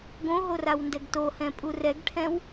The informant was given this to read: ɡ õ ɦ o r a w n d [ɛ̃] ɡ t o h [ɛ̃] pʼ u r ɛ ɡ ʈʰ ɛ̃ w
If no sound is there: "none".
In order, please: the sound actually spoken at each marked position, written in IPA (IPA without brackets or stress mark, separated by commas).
ɛ, ɛ̃